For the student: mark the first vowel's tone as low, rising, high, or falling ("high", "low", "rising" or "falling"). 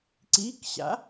rising